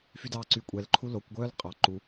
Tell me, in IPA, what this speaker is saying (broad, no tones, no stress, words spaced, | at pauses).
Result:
fydɑːǀykʷʼɛl ǃʰulokʷ ɡʷœːlqʼɑ ǃu